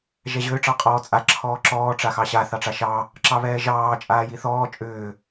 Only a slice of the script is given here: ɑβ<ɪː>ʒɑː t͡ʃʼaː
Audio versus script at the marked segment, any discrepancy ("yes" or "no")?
yes